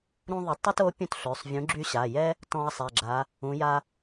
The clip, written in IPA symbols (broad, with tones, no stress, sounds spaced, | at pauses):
ɾ ũ˥ ðˤ ə˧˥ tˤ ɛ˥ t o˧˥ pʲ ũ˥ t ɬ ø˩˧˩ sˤ vʲ ũ˧˥ ɡ͡ǁ y˥ ɕ a˩˧˩ j ɛ˥ | t ɔ̃˥ ɐ̯ sˤ ɛ˩˧˩ ɡ͡ǁ a˧˥ | ũ˧˥ j a˥